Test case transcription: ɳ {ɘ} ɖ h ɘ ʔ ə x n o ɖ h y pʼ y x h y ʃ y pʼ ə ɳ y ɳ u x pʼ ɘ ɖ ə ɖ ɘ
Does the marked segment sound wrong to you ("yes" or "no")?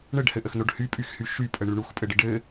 no